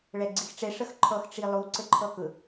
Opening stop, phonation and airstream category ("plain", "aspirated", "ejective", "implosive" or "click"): click